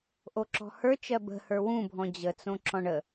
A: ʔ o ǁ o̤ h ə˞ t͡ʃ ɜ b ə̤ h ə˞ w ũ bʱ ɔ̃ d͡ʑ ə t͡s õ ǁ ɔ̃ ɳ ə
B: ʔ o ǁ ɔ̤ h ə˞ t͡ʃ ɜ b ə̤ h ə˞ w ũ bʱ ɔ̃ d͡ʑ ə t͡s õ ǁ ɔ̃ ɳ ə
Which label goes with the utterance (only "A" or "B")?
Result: B